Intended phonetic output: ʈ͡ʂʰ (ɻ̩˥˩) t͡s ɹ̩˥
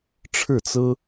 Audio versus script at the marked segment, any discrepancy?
no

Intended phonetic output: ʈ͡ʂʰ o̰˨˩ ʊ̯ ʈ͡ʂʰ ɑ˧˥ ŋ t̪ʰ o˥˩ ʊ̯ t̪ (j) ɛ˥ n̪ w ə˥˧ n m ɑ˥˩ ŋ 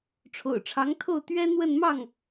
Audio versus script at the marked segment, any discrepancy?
yes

